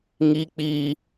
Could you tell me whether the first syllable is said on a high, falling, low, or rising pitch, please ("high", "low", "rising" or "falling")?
high